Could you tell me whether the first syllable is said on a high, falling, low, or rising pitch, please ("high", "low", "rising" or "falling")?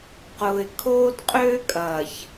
low